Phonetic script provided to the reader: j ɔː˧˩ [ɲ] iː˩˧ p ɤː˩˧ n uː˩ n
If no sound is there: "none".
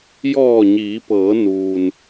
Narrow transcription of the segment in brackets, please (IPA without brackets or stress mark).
ɲ